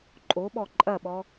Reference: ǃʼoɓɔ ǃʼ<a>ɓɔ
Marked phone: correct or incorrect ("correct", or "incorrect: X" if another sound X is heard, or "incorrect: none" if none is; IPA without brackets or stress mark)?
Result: incorrect: ɐ